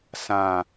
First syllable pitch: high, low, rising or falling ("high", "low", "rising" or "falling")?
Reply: low